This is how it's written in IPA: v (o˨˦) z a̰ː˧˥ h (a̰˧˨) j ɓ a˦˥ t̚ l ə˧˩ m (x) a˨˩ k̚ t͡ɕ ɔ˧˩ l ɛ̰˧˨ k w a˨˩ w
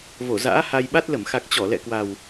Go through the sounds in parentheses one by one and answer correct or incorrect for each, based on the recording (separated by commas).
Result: incorrect, incorrect, correct